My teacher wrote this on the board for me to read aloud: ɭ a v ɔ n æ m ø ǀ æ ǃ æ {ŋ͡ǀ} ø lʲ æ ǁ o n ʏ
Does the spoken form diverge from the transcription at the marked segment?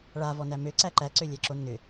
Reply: yes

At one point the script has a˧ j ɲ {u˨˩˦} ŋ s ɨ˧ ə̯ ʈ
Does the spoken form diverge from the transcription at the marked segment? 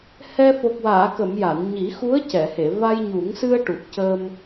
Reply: no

